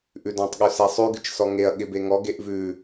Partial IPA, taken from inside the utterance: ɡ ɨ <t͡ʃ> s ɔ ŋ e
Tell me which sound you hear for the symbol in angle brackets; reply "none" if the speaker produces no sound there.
t͡ʃ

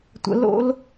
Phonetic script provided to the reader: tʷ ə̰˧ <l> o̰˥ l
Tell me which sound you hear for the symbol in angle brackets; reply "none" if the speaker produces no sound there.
l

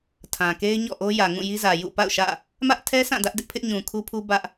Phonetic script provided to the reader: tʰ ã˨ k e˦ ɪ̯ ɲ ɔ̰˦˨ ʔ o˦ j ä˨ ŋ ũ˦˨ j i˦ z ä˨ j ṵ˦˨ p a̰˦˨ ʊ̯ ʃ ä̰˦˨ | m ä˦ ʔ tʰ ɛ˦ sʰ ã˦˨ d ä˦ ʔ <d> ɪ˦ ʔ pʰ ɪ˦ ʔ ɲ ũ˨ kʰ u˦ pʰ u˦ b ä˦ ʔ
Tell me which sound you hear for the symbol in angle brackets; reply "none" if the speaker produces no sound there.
d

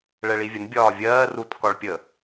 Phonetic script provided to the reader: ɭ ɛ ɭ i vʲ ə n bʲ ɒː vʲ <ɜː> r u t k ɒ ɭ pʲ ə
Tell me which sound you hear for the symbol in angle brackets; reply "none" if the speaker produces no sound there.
ɜː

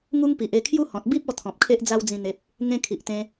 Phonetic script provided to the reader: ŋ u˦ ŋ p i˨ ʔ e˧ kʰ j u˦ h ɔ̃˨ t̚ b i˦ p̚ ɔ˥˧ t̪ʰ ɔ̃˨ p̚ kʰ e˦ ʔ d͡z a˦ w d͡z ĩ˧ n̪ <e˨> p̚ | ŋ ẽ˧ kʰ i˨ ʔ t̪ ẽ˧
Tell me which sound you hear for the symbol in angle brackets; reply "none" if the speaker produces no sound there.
e˨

